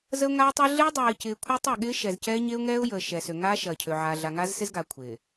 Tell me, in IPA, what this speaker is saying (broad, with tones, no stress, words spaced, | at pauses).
zə˦ʊ̯ŋaː˦tˤəː˦ ɮɪː˦dˤɛː˨ɪ̯cɪː˨ kʷʰəː˦tˤɪ˦˨ɠɪː˦ ʃɛ˨zcɛː˦ ɲe˦ʊ̯ŋɛː˦ʊ̯jəː˨ ʃɛ˨ sø˨ŋaː˦ʃɐː˨ cʰø˨ʕaː˨ ɮa˨ŋa˦zsɪ˦z ɡa˨ kʷʰɪː˨